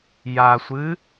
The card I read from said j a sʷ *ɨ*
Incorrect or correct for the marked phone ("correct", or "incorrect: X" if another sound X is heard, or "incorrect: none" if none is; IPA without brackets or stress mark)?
correct